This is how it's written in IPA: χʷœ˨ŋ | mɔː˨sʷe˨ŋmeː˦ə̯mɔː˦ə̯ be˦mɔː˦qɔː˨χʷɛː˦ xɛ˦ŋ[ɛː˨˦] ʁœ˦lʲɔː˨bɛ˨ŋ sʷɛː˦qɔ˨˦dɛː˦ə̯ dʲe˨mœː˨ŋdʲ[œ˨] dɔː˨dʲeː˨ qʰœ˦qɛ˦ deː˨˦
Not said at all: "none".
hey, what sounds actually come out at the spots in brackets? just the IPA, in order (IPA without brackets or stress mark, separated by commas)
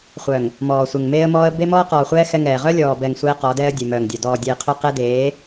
ɛː˨, œ˨